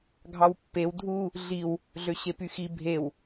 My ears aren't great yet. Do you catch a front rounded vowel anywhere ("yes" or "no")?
yes